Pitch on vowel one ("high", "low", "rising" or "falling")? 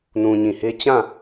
low